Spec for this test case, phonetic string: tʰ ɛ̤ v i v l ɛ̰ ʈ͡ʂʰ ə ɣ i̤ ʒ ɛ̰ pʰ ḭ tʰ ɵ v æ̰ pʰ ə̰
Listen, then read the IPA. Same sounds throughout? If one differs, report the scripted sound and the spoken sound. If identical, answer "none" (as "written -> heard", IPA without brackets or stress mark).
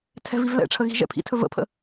æ̰ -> ə̰